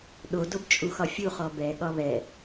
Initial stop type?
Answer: implosive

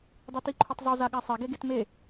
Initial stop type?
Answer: plain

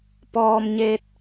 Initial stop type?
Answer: plain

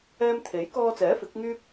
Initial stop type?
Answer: aspirated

